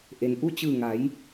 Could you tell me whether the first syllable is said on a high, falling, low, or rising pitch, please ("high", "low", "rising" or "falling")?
low